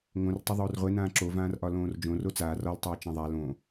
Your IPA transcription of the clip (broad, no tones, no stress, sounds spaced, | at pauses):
ŋ õ r tˤ o ðˤ oː r ʁʷ e n ãː ǁ o v ãː r ʔ ɒ l õː r d͡ʒ õ r o t͡s aː r ɒ l tˤ eː t͡ʃ ã ðˤ a l õ